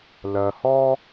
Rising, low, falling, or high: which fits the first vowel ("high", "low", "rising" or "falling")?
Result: low